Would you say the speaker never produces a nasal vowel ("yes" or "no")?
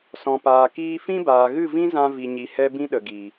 no